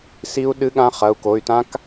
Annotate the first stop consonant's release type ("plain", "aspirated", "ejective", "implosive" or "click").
implosive